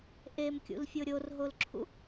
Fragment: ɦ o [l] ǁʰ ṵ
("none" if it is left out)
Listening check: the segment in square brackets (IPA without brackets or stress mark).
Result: l